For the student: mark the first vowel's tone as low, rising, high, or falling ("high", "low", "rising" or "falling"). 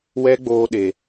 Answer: high